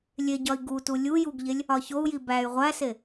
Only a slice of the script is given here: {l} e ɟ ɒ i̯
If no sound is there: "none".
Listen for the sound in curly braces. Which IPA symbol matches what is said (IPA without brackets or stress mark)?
lʲ